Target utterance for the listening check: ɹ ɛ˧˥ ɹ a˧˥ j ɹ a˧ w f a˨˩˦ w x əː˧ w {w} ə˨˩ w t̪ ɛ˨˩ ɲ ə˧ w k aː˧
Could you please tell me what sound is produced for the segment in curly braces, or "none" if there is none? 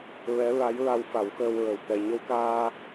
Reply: ɹ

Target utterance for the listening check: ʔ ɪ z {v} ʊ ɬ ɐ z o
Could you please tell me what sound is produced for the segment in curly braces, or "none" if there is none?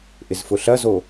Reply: f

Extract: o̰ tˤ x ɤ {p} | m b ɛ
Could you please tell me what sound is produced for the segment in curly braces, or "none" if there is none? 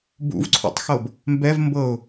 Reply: b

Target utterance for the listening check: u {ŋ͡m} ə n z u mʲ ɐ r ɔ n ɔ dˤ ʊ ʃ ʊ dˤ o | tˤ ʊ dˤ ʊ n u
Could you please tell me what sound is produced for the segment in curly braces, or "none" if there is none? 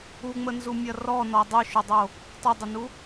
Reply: ŋ͡m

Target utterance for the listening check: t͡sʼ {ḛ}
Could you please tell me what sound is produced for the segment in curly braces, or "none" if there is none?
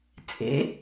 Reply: ḛ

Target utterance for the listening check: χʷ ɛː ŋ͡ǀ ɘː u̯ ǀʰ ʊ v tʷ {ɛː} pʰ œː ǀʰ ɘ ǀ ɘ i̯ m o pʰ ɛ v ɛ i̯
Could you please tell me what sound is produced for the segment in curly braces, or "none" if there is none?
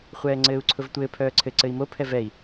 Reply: ɘː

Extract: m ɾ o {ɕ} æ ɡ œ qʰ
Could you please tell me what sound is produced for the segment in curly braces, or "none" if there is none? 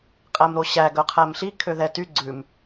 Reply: ɕ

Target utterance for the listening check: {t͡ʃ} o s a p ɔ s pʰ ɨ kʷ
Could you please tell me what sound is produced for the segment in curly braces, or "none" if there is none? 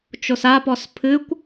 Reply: t͡ʃ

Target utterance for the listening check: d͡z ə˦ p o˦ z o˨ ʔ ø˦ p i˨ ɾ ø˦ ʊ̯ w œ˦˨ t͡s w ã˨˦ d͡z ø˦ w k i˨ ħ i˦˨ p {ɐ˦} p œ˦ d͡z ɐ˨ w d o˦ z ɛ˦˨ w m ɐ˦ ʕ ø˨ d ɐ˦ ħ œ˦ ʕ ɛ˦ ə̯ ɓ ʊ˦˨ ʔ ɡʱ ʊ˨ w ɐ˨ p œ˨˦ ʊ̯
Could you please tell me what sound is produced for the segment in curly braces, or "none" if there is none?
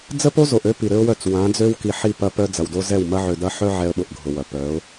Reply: ɐ˦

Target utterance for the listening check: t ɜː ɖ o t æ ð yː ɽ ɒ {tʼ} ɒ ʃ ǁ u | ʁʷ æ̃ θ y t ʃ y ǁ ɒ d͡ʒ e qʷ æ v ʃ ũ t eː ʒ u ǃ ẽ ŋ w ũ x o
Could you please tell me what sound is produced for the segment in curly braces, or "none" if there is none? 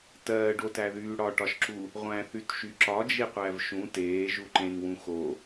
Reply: ʈ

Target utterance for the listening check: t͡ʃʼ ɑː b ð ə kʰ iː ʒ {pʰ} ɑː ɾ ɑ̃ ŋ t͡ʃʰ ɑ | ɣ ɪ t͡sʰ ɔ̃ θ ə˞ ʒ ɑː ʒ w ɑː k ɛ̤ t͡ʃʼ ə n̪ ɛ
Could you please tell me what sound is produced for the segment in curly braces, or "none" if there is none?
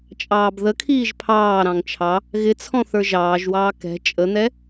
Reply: pʰ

